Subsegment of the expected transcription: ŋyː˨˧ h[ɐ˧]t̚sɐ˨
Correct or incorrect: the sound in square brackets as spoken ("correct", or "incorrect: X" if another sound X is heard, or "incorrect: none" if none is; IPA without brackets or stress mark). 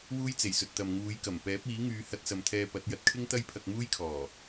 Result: correct